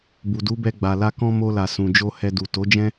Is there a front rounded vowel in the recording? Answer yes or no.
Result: no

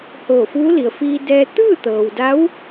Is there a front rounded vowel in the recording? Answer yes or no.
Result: no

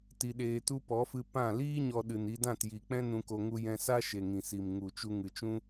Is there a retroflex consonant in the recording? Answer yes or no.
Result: no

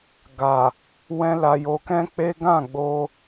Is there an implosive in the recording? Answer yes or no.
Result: no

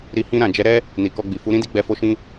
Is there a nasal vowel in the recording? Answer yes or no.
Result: yes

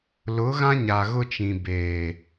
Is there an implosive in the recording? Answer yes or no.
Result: no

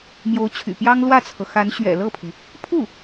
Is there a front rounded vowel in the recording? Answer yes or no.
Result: yes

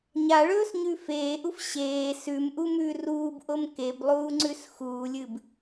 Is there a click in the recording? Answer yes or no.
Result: yes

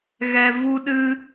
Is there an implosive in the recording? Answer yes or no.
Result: yes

